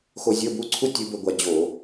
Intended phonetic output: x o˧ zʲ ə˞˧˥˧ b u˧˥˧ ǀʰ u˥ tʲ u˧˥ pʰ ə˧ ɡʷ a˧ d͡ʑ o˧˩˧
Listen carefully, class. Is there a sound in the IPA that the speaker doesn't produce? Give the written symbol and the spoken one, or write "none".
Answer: pʰ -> b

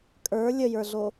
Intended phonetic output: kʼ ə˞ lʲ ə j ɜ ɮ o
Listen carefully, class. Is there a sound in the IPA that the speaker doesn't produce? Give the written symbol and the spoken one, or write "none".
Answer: ɜ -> ə˞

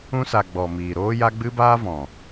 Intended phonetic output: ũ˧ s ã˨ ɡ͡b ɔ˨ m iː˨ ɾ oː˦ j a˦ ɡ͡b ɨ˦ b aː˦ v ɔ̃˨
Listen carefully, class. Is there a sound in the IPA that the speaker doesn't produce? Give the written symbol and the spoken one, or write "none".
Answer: ã˨ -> a˨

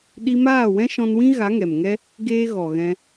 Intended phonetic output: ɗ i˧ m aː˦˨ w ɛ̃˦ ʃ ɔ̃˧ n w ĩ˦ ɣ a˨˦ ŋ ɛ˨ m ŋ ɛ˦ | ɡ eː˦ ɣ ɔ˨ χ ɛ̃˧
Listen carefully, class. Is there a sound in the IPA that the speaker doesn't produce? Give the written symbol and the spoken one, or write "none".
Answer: χ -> ɣ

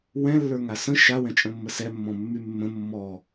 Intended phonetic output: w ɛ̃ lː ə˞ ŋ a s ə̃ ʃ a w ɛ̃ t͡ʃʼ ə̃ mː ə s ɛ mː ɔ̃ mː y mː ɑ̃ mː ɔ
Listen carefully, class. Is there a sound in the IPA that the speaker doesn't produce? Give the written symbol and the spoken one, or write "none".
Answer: ɑ̃ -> ə̃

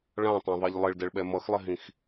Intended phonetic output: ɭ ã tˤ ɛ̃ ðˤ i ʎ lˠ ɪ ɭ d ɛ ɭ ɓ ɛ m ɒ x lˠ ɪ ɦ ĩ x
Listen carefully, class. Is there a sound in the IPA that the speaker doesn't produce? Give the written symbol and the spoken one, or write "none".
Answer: ɒ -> ʌ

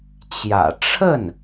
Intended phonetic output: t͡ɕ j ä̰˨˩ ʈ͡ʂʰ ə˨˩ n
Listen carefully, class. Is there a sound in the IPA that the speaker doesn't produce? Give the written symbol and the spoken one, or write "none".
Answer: ə˨˩ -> ə˥˩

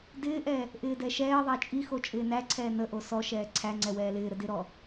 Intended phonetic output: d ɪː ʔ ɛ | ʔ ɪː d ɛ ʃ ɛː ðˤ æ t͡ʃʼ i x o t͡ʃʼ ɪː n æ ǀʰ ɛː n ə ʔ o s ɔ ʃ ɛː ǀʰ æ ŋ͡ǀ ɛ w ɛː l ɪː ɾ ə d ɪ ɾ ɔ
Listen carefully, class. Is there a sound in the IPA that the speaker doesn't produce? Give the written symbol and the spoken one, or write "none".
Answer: none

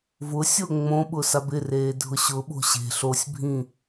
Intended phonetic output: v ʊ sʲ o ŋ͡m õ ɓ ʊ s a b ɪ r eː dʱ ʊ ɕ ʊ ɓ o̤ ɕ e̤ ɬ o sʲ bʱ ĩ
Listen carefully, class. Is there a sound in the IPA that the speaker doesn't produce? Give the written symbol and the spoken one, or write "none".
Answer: none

